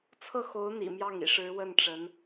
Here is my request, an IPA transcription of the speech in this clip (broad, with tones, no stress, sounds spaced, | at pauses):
t͡sʰ ɤ˥˩ x o˧˥ ʊ̯ n̪ ḭ˨˩ m j ɑ˥˩ ŋ ḭ˨˩ ʂ ɻ̩˧˥ w ə˥˩ n ʈ͡ʂ ə˧˥ n